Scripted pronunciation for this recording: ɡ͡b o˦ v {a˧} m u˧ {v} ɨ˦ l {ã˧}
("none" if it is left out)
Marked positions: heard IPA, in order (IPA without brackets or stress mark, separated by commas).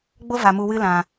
a˨, w, ã˨